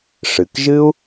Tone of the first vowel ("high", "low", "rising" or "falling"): low